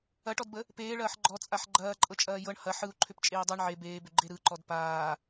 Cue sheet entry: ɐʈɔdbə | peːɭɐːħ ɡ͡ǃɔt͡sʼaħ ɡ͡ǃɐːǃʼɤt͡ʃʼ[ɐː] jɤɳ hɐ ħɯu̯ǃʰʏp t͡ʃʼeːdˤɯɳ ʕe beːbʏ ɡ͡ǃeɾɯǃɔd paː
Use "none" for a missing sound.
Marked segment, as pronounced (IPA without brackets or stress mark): ɐː